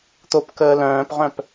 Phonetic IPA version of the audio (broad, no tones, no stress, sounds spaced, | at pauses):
t̪ o p k əː l œ̃ː p ʁ œ̃ p